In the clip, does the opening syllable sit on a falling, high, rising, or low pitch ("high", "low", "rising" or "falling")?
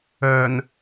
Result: low